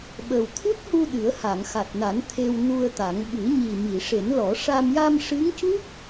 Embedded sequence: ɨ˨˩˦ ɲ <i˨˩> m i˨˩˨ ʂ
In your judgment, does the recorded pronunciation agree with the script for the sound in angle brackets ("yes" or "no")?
yes